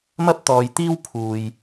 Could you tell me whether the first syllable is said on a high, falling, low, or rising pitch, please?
high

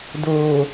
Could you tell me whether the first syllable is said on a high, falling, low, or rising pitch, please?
low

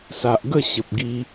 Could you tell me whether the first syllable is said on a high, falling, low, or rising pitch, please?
low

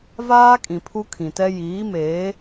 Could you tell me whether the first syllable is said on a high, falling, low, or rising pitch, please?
high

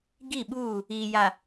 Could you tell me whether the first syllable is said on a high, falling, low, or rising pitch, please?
falling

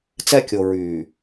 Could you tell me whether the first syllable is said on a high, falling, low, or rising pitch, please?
high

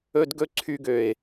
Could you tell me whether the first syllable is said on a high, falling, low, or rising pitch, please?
high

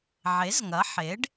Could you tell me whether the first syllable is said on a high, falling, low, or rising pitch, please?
rising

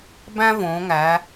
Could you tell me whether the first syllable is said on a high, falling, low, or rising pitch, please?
high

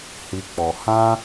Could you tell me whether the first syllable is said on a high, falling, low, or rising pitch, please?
high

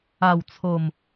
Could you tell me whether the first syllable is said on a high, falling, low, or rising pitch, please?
low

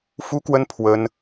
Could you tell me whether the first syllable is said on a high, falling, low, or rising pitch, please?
high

